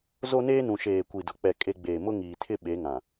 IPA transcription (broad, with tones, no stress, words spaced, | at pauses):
zo˦neː˦nũ˨ ʃeː˨kʷi˨dʊ˨ k͡pɛ˨ kʼe˦ ɡ͡beː˨mʊ˦ŋiː˨tʰɪ˦ ɓe˨˦ŋã˨